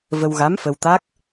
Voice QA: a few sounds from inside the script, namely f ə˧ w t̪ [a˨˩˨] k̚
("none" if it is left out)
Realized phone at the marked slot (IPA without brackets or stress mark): a˦˥